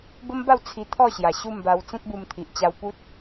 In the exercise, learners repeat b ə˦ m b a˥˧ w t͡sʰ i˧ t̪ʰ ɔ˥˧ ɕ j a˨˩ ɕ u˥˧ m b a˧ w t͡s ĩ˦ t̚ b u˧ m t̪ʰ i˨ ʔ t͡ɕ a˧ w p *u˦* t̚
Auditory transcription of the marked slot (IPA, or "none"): u˦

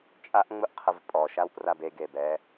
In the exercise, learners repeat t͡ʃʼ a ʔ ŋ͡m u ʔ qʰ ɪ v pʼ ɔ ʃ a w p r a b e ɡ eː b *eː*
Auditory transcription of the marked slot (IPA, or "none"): ɛː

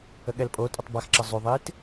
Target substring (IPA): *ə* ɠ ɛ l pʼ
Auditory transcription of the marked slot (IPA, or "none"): ə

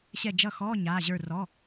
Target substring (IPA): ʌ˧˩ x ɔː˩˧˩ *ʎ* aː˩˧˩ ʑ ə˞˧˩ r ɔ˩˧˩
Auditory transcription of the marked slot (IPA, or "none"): ɲ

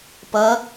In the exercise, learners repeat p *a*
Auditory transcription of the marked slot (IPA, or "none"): ɐ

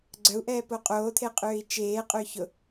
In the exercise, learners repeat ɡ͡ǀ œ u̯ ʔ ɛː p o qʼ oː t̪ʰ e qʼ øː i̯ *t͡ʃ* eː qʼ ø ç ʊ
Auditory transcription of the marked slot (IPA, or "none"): t͡ʃ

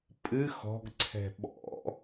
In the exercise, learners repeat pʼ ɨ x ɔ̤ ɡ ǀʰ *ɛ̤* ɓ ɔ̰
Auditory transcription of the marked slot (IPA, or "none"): ɛ̤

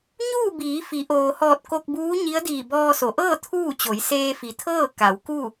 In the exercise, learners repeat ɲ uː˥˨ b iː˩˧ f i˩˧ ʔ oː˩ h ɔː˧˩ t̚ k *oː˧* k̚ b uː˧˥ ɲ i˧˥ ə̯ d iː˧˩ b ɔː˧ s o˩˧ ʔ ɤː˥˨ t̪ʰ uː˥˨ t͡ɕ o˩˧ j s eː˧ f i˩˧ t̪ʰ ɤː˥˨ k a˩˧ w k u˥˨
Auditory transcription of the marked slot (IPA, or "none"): o˧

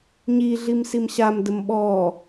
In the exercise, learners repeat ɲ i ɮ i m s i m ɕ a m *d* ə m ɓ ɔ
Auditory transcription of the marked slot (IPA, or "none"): d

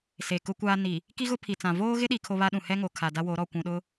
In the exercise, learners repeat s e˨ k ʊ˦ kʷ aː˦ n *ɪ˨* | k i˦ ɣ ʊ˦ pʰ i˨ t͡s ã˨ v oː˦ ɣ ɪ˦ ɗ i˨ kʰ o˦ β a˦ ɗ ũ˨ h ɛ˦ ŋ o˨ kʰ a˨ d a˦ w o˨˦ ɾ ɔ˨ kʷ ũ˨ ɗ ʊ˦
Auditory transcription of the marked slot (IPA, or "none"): i˨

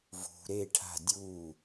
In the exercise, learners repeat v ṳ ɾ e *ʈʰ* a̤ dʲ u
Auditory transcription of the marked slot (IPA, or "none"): ʈʰ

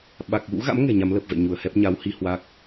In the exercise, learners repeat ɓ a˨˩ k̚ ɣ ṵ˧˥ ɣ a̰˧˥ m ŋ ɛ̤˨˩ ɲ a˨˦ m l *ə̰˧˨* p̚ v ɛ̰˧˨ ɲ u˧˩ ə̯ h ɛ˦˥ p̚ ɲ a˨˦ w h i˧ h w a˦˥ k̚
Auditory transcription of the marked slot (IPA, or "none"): ə˨˩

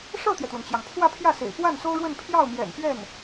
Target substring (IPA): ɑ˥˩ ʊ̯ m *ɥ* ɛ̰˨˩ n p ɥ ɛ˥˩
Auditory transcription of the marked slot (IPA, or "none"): j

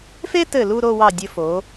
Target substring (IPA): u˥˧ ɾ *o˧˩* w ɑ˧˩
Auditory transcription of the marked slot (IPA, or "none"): o˥˧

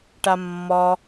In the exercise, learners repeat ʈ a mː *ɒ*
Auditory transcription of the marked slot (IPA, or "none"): ɒ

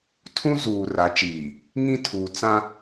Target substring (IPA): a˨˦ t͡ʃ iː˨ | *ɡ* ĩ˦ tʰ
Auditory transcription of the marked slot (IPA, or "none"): ŋ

